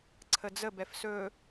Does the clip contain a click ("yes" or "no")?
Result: yes